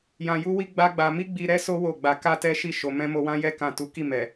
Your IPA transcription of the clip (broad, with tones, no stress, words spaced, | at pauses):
jã˧ju˦wi˦ ɡ͡ba˦ɡ͡ba˧ mi˦ɡ͡bi˧ ɾɛ˦so˦ wo˦˨ɡ͡ba˧ ka˦tɛ˦ʃi˦˨ ʃo˨mɛ̃˧ mo˧wã˦jɛ˦ kã˦˨ tu˨˦ki˦˨ mɛ˨